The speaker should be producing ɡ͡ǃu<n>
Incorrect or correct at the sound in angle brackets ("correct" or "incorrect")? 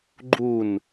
correct